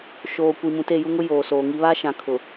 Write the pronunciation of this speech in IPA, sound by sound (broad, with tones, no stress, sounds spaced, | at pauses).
ʃ oː˨ kʷ i˨ m ũ˨ t e˦˨ j u˦ ŋ ʊ˦ j oː˨ s oː˨ ŋ i˦ β aː˦ ʃ ã˨ kʰ ʊ˨